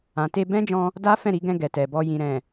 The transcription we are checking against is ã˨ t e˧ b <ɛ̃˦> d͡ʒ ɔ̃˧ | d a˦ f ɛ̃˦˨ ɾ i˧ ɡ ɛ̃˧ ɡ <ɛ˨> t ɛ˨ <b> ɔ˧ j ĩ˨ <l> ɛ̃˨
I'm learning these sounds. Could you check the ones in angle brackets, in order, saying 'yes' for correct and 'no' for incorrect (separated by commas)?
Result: yes, yes, yes, no